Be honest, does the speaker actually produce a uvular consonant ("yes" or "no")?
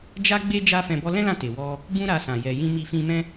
no